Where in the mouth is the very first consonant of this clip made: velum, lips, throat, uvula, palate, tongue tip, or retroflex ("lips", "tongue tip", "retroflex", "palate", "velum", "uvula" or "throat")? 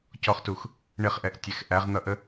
palate